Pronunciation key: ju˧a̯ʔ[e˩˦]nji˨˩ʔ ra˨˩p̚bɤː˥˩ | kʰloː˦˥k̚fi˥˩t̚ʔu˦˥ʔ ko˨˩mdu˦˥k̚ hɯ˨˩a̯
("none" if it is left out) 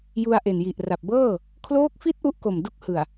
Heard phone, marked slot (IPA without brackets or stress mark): e˨˩